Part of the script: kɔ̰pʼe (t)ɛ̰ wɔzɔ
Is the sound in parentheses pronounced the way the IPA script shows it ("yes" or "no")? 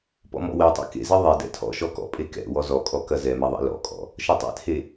no